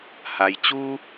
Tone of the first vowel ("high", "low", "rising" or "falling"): low